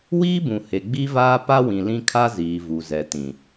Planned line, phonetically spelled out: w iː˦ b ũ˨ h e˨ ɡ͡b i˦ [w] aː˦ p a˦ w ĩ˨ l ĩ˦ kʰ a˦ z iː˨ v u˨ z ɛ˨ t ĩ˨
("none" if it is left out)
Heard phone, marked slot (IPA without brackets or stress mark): v